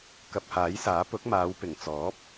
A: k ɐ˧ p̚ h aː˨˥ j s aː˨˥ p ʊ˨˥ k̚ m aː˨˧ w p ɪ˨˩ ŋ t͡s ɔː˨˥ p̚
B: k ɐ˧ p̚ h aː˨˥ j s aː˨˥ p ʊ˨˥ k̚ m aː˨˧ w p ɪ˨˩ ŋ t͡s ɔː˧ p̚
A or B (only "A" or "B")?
A